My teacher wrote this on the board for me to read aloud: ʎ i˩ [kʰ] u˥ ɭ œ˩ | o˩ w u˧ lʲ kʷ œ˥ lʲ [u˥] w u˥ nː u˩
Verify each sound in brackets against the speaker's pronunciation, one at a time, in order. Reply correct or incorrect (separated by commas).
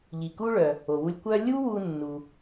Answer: incorrect, correct